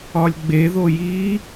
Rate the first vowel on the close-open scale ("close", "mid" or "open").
open